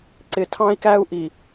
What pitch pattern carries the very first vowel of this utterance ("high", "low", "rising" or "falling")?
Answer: low